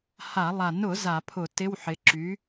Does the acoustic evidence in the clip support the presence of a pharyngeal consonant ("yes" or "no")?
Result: yes